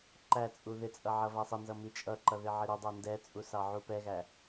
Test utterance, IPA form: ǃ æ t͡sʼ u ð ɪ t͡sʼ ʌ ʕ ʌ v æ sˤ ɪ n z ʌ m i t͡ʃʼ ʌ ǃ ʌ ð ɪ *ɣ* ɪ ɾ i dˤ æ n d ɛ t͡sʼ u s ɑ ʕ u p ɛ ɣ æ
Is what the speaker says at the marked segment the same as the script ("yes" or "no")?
no